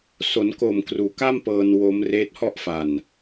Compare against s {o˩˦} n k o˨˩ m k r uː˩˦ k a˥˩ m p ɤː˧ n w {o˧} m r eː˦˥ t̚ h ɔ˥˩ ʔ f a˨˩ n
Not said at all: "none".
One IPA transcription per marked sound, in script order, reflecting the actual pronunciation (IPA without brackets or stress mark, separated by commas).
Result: o˩˦, o˦˥